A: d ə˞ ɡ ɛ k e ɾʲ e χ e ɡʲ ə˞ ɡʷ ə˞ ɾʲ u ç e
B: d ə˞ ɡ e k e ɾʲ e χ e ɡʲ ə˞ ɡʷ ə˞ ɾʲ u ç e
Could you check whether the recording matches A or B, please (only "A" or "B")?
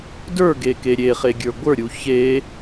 B